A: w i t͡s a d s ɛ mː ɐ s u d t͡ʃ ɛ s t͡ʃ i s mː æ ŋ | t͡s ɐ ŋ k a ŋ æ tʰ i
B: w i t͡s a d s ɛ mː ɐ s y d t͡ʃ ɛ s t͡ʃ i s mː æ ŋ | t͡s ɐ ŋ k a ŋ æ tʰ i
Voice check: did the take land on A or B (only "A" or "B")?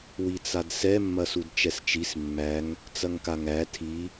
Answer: A